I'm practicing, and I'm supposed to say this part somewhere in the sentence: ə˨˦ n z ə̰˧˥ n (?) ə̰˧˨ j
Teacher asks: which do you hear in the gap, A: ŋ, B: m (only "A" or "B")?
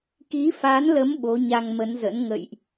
A